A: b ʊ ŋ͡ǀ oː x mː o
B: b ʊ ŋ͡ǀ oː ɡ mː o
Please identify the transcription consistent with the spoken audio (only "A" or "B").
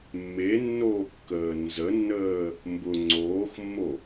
A